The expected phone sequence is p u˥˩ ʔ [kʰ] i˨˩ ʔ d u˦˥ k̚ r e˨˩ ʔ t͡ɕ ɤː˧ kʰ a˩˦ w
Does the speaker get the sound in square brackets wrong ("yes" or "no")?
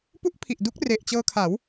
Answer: yes